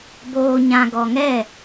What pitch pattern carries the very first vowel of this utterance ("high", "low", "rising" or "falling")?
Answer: low